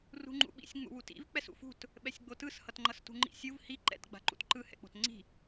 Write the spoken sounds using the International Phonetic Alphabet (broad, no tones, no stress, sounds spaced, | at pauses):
r ṳ ŋ͡ǃ ṵ ɓ ḭ sʲ ŋ͡m ṵ w u t ḭ v k͡p ɛ s ṵ f ṳ t | ɓ ɛ sʲ ɡ͡b o t ɯ s h ʌ t ŋ͡ǃ ʌ s t ṳ ŋ͡ǃ ḭ sʲ u v h i ǃ ɛ̰ t ɡ͡b a̤ ǃ ṵ t ǃ ɯ h ɛ̰ k͡p o̤ t ŋ͡ǀ i̤